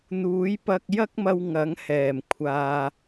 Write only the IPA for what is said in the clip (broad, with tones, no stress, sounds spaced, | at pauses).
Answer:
n̪ uː˨˥ j p ɐ˧ k̚ j ɐ˥ k̚ m ɐ˧ w ŋ ɐ˨˥ ŋ h ɛː˨˩ m kʷʰ aː˨